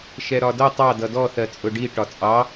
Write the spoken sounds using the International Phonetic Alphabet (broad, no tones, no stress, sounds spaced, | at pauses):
ʃ ɛ ɾ ɒ d ʌ tˤ ɑ d ʌ d ɔ θ ɜ t͡sʼ ʊ ɖ i ʈ ɒ t͡sʼ ɑ